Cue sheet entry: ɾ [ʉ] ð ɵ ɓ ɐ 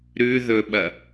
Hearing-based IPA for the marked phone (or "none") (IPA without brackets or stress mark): ʉ